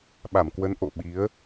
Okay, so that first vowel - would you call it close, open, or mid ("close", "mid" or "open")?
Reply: open